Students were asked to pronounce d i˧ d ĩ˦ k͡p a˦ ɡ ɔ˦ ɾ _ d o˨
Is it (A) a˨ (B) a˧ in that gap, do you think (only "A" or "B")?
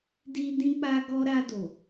B